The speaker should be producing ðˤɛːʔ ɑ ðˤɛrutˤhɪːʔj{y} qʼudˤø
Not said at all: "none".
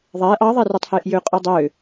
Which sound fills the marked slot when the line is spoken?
ø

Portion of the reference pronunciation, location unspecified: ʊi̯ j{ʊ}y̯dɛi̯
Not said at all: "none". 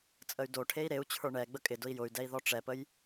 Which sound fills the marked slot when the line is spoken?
ʊ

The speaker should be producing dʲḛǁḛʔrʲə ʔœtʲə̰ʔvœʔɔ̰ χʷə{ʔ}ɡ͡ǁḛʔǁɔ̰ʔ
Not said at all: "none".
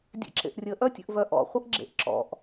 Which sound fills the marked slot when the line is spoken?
ʔ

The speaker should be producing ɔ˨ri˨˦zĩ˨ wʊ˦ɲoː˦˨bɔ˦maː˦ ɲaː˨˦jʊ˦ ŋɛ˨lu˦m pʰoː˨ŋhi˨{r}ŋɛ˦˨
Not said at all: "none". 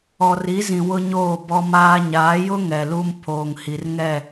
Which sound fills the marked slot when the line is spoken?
r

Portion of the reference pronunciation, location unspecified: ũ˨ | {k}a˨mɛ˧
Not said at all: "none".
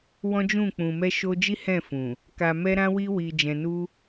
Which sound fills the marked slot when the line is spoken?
k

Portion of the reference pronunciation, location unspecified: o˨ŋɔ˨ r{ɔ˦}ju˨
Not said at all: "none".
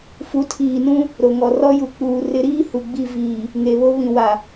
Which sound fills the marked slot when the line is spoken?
ɔ˦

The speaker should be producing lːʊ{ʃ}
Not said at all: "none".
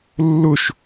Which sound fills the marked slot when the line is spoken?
ʃ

